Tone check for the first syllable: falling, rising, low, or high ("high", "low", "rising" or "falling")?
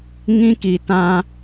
high